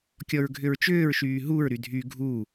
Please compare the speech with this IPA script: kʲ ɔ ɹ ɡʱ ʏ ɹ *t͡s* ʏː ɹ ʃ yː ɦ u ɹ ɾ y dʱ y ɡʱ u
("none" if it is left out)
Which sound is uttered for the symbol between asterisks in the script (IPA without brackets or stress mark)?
t͡ʃ